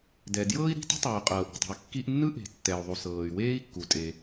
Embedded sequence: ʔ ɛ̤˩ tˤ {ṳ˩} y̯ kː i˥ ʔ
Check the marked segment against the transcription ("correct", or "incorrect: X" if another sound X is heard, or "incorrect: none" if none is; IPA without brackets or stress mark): correct